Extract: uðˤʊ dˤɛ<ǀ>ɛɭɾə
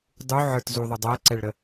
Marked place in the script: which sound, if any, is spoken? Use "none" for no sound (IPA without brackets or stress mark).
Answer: ǀ